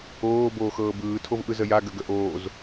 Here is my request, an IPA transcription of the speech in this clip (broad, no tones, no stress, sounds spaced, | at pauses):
oː b oː x ɤː b ɯː tʰ o v ʔ ɯ z ə j a ɡ ə ɡ ə ʔ oː z